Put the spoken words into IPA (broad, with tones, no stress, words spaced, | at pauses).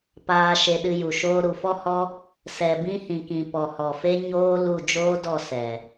paː˧ ʃe˧ɗɨ˧ju˨ ʃoː˧ɾu˨fɔ˦hɔ˦ | sɛ˨bĩ˧ hĩ˨kĩ˨ pɔ˨hɔ˨fe˦ ɲoː˦ lu˦˨ d͡ʒoː˦dɔ˦˨ sɛ˨